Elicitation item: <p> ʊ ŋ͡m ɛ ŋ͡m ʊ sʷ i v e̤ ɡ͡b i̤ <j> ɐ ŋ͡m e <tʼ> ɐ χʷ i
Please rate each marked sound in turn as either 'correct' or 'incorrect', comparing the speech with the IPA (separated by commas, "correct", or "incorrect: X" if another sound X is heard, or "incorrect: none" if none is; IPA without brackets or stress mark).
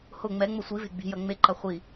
incorrect: h, correct, incorrect: ǃ